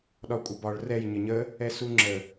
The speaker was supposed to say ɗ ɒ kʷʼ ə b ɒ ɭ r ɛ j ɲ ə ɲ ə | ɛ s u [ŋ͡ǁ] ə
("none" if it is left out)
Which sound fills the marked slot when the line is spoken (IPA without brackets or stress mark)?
ŋ͡ǁ